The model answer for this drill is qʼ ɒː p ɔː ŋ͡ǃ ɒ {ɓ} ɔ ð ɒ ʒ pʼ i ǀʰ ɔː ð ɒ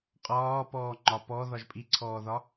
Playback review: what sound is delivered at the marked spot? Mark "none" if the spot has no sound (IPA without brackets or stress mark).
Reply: p